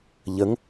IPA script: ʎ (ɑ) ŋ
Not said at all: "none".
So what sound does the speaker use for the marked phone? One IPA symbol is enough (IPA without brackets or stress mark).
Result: ə